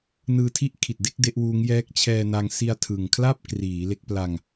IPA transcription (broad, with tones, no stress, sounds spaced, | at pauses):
n ɯː˧ tʰ i˥˩ ʔ kʰ i˨˩ t̚ d e˥˩ k̚ d e˥˩ ʔ w uː˦˥ ŋ j ɛː˦˥ k̚ t͡ɕʰ ɛː˧ n a˧ ŋ s i˧ a̯ tʰ ɯ˨˩ ŋ kʰ l a˥˩ p̚ k r iː˩˦ l e˦˥ k̚ p l a˧ ŋ